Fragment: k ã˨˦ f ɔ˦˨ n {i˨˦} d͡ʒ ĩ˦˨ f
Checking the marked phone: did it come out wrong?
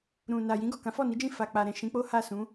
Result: no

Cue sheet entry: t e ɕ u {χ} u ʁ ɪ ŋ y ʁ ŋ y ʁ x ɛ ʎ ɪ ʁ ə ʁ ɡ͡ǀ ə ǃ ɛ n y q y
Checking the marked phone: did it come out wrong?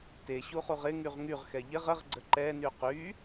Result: no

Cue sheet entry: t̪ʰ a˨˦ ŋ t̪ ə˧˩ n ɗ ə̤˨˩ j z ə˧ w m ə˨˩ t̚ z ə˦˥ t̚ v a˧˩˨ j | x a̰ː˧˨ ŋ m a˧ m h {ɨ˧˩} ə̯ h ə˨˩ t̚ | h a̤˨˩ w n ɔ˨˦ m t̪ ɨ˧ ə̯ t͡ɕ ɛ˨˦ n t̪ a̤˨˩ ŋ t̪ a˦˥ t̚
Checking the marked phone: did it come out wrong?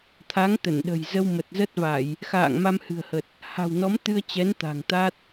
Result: yes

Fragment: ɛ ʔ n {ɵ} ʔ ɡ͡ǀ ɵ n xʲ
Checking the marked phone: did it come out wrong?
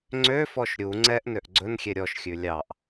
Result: yes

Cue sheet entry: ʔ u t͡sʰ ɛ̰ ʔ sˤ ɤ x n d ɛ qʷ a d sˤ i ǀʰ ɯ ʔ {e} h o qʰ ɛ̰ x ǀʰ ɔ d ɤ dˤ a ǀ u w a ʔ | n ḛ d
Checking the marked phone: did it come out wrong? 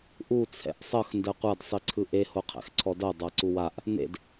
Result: no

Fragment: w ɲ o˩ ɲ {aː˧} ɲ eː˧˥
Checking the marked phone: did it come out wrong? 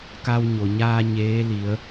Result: no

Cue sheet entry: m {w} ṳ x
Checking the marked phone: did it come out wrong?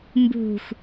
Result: yes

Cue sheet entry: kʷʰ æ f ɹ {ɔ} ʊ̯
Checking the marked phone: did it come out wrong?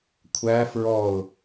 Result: no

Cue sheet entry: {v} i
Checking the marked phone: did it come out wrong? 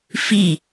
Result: yes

